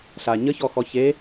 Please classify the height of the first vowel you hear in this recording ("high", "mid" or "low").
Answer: low